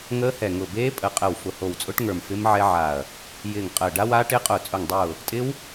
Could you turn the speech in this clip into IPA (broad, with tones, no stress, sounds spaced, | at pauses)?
ŋ əː˦˥ h ɛ˧˩ ŋ ʊ˧˩ b eː˦˥ pʼ ə˧˩ qʼ ə˧˩ w f ʊ˧˩ h o˧˩ w t͡sʼ ʊ˦˥ ʈ ŋ ə˞˧˩ m f ɪ˦˥ m ʕ ɛ˦˥ ʕ a˧˩ ɐ̯ | j ɪː˧˩ ŋ qʼ əː˧˩ ɖ a˦˥ w aː˦˥ ʈ ɪː˦˥ qʼ ʊː˧˩ t͡sʼ ʊ˧˩ ŋ dˤ ʊː˧˩ | tʼ ɪ˦˥ w